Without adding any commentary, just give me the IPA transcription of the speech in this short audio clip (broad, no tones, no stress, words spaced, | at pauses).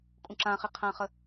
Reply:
kʼũǁãχi qʰãχə